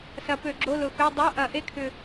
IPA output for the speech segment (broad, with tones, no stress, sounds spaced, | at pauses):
s ɐ˨˩˦ p ø˨˩˦ ɡ͡ǁ o˧˥˧ l ʊ˨˩ x ø˧˥˧ dˤ o˧˥˧ ʔ ɐ˨˩˦ ʔ e˧˥˧ kʰ ʏ˨˩